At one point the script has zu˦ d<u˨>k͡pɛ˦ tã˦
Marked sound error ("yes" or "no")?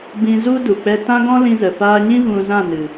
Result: no